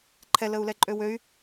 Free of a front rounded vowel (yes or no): no